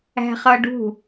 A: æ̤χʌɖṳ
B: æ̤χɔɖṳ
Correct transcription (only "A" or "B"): A